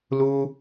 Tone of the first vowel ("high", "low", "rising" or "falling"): high